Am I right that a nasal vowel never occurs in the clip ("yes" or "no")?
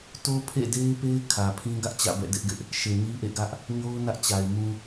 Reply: no